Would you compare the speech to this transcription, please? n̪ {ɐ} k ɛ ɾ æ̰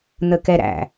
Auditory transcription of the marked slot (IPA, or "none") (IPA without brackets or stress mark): ə